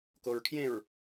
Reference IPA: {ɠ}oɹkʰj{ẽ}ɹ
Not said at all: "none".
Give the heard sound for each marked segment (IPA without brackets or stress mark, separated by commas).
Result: k, ẽ